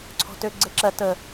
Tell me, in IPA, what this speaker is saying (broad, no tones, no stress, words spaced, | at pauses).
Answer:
ǀʰɔ̤tø ɡ͡ǀeǁɜ tə